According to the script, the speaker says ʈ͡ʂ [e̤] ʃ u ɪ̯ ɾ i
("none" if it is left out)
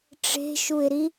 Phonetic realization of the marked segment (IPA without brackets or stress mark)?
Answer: e̤